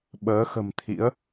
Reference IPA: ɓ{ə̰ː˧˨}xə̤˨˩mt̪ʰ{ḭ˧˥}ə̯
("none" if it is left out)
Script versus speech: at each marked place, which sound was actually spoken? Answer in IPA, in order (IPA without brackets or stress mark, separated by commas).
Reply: əː˨˦, ḭ˧˥